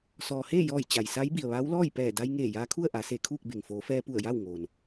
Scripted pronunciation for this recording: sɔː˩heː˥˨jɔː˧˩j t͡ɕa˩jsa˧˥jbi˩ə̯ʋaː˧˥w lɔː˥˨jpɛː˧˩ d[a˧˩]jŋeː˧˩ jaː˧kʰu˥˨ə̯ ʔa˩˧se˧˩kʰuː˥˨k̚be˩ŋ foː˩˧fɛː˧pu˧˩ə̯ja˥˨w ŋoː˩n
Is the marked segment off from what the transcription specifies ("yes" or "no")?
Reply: yes